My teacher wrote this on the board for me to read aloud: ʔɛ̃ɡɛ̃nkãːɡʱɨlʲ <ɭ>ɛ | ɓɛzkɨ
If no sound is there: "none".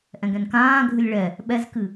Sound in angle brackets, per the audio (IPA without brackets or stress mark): ɭ